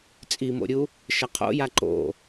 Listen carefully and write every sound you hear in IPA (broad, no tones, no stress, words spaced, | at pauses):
t͡sʼimo̰ɾʲu | ʃɐqʰo̰ja ǃo̰